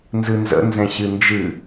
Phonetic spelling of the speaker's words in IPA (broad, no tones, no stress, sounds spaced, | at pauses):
n z ɨ n z ə̰ n z ɛ̃ ɕ ɨ n d͡ʒ ɨ